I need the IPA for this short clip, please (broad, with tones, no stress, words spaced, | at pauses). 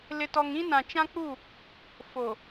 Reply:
lɪ˨tɔ˨ŋ ĩ˦nã˨t͡ʃã˦k͡pu˦˨ | fo˨